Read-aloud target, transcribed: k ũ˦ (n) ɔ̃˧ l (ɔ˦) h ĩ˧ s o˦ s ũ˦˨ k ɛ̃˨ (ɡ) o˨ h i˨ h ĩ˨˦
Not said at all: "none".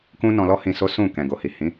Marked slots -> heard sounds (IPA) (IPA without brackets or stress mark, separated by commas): n, ɔ˦, ɡ